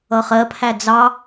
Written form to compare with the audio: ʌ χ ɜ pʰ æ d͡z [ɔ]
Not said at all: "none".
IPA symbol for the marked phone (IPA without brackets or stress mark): ɑ